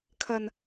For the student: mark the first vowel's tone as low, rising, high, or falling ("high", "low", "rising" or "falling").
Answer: low